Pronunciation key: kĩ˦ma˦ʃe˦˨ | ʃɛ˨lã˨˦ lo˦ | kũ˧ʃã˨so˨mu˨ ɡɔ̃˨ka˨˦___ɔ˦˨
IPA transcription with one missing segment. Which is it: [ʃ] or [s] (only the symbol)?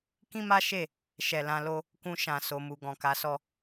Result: s